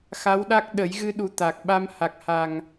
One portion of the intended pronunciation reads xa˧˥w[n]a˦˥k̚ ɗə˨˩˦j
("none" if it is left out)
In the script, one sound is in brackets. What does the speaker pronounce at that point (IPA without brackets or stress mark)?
ɗ